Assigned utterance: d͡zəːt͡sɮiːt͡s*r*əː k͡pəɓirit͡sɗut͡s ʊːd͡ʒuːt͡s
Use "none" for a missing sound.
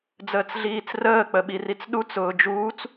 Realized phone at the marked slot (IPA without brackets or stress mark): r